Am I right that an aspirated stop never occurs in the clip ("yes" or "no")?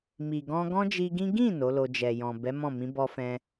yes